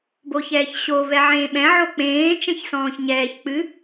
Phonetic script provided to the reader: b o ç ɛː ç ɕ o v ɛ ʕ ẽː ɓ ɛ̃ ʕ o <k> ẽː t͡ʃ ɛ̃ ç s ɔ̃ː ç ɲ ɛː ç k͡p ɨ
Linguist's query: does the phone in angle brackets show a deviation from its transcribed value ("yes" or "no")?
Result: yes